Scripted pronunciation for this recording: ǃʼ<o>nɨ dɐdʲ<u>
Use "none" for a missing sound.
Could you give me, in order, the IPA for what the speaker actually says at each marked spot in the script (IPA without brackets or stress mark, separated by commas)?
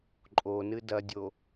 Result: o, o